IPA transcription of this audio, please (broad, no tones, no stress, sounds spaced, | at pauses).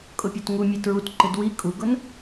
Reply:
kʼ ʊ pʲ ɔ t ŋ u mʲ e t ɹ u t ǃ ɪ d w i kʼ u ɡ ʊ n